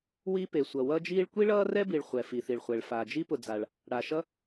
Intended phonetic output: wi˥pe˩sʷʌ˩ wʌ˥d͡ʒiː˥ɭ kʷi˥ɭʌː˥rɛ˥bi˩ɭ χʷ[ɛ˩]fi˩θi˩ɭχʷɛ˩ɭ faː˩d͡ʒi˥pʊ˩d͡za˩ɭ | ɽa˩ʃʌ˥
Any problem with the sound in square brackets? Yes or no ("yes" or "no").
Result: no